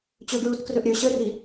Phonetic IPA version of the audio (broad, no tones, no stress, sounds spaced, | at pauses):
t͡ɕ ɵ ɡ ɹ u t k r ɵ ʔ ɾʲ ɵ ɕ ə r i